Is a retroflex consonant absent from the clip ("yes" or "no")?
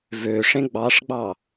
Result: no